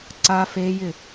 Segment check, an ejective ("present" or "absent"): absent